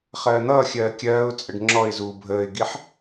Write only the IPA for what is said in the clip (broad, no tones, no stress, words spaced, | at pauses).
χɜːn̪ʌːxʲɜː kʲɜːʊ̯t͡sʼəɖ ŋ͡ǁɔɪ̯zuː bʱəːɪ̯ɡiħ